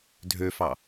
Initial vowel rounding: rounded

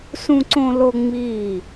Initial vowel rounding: rounded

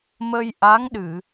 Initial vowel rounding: unrounded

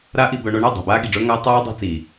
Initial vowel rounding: unrounded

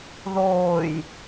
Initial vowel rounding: rounded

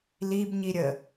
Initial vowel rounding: unrounded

